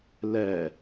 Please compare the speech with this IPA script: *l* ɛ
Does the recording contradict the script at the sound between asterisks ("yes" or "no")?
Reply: no